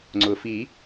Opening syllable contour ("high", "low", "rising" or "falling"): low